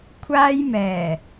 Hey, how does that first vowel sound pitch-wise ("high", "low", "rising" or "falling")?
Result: high